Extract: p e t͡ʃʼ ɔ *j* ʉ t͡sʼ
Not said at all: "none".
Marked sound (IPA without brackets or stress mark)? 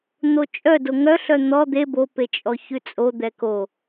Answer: ç